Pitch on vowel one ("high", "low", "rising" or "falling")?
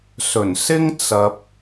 low